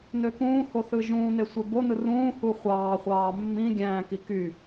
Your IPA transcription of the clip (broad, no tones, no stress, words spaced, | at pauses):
nøkũːho θɯʒũːn̪e sʷebonɯ rũːhu χʷɑːχʷɑː mːĩ ɡʲæ̃ːki ky